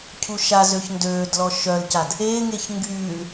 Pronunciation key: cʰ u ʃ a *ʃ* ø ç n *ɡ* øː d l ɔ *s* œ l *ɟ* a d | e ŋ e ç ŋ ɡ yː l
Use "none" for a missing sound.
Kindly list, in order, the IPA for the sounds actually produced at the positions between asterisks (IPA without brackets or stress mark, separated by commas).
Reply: z, d, ʃ, c